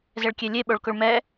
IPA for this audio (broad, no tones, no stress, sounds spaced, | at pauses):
z ɛ ɭ kʲ e lʲ e ɓ o ɭ k ʊ ɭ m ɛ